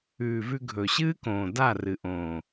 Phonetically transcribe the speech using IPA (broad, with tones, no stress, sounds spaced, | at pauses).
ʉː˨ v ʉ˧ ɡʱ ɵ˨ ɕ ɨː˦ k õː˨ d a˦˨ r ɨ˨ ʔ õː˨